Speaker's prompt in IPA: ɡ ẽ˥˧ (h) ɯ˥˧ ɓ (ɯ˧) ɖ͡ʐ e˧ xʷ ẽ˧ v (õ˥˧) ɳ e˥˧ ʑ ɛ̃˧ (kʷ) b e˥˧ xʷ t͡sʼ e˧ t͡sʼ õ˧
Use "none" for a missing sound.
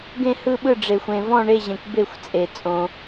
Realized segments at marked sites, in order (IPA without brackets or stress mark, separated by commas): h, ɯ˥˧, ɔ̃˥˧, kʷ